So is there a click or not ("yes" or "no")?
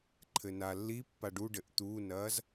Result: yes